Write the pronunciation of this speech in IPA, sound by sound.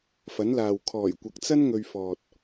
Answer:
f ɐ˨˥ n l aː˨ w kʰ ɔː˨˩ j kʷ ɐ˨ k̚ t͡s ɐ˥ n ŋ ɵ˧ ɥ f ɔː˨ t̚

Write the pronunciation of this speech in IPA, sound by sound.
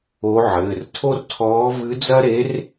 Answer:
o˧˥ ʕ ɘː˩˧˩ r tʰ o˥ r tʰ ɔː˧˥ v ɨ˧˥ d͡z ɐ˥ ɾ e˧˥ r

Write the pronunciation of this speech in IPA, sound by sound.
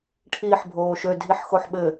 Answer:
ʈʰ iː ħ bʱ oː ʃ ø dʱ i ħ x o ħ ɓ ɘ

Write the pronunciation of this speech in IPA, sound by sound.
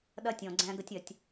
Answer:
ɗ ɐ˦ tʲ ɔ̃˨ ɡ͡ǀ æ̃˦ ɡ ə˦ tʲ ɐ˨ tʲ

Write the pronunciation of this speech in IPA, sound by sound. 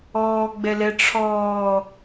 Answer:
ɔː ɡ͡b ɛ l ɛ ʈ͡ʂʰ ɔː

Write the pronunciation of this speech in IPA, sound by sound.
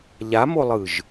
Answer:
ʎ a m o lˠ ɯ ʒ

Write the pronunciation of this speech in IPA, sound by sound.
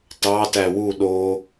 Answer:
t ɑ t æ w u ɗ o

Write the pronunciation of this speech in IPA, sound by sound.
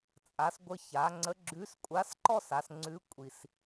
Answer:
t͡sʼ a˩˧ s ɡʷ ə˧ ç a˩˧ ŋ͡ǀ ə˧˥ ɡ͡ǁ ʉ˧˥ s kʷʼ a˧˥ s ǃ ɔ˥ s a˩˧ s ŋ͡ǀ ʉ˧˥ kʷʼ i˧ s

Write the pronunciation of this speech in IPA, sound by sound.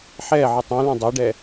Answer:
ħ ɛː ʕ ɯ tˤ ũ l ũ dˤ ɛ ɖ ɛː

